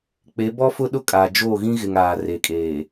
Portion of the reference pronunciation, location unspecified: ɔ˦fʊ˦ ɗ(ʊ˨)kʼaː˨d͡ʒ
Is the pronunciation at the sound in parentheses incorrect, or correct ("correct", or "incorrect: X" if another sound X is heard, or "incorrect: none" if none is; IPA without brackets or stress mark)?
incorrect: ʊ˦